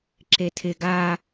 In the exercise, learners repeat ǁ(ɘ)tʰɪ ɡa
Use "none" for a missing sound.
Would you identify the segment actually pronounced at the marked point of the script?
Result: e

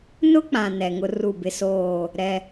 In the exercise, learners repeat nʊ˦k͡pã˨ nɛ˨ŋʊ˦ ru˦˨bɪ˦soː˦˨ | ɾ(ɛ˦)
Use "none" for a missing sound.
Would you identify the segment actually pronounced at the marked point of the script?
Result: ɛ˦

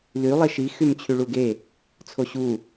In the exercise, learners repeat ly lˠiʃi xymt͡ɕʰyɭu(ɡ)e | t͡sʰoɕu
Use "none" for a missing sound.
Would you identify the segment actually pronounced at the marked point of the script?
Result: ɡ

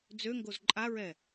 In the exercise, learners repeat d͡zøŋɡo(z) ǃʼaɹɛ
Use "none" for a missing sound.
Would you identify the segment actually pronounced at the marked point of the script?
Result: z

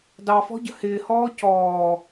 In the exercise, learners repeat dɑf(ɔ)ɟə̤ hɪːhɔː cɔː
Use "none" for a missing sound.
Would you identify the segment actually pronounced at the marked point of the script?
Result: ɔ̤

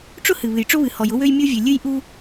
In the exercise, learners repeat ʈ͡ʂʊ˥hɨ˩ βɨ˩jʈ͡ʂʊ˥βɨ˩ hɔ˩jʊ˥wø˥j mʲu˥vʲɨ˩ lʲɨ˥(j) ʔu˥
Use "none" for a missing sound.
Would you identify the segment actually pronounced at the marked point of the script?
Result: j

